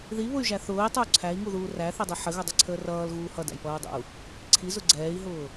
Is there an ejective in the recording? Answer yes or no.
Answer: no